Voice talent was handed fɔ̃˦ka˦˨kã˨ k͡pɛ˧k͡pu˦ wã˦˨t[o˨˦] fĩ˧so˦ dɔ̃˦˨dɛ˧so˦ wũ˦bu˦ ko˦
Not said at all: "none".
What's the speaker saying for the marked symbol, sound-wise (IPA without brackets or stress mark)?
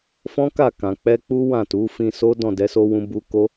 u˨˦